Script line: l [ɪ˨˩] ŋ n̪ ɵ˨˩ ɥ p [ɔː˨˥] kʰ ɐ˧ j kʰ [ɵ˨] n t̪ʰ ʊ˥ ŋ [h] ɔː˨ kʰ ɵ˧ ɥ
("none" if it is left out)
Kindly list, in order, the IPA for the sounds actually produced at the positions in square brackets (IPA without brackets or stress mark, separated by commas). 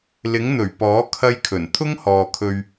ɪ˨˥, ɔː˨˥, ɵ˨˩, h